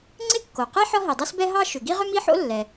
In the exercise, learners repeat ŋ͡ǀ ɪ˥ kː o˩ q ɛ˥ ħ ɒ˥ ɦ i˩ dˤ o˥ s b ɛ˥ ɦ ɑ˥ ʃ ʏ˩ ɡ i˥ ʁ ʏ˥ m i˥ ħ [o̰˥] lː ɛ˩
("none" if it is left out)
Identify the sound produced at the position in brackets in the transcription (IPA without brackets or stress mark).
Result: o̰˥